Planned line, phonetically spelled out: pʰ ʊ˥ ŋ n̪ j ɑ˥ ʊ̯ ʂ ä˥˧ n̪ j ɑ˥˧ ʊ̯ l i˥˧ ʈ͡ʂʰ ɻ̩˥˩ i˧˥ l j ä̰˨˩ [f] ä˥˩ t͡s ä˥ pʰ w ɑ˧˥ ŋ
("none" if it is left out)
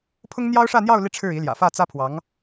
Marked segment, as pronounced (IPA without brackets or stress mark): f